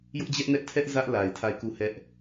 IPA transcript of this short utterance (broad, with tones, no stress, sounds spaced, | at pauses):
j ʊ˦ ʔ d͡ʑ ɛ˦ ʔ n ɛ˦ ʔ tʰ ɛ˦ ʔ z ä˦ ʔ l a˨ ɪ̯ tʰ a˦˨ ɪ̯ k u˦˨ h ɛ˦ ʔ